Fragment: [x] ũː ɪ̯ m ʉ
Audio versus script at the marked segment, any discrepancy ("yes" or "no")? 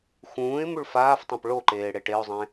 no